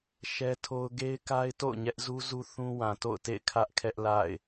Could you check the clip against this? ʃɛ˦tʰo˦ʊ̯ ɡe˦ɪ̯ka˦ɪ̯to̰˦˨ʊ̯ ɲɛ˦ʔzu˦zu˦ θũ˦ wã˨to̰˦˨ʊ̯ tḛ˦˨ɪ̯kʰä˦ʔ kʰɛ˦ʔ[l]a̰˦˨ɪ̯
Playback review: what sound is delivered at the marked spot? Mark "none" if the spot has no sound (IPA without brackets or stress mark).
l